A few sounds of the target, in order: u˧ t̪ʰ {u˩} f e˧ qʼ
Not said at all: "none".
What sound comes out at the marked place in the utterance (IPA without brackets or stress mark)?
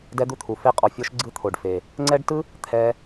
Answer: u˩